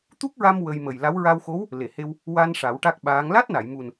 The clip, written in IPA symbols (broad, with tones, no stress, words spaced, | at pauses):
t̪u˦˥k̚ɹa˧m wə˧j mə˨˩jla˧˥w ɹa˧wxo˧˥w | le˨˩˨he˧w | wa˧n ʂa˨˩˦wʈa˦˥k̚ɓaː˧˥ŋ la˦˥t̚na˨˩˨jmu˨˩n